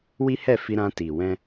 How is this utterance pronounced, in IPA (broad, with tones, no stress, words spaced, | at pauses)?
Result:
wi˦ hɛ˦˨fi˧ɾã˧ti˨ wɛ̃˧